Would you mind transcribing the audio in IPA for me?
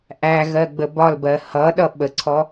ʔ æ ɣ ɜ ɡ͡b ə b ɒ l b ɜ h ʌ ɗ ʌ ɓ ə ǀʰ ɔ

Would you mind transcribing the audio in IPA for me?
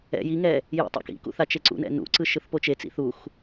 ɛ̰ j i ŋ ɛ | j ḭ tˤ ṵ k ḭ k ṵ θ a t͡ʃ e ǀ ṵ n ɛ̰ n ṵ ǀ ɯ ʃ ɯ θ p o t͡ʃ e t͡s ḭ θ u x

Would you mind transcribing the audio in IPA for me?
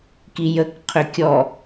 k i j ə k qʰ ʏ kʲ ɔ

